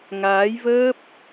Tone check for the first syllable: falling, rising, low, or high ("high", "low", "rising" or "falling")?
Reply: rising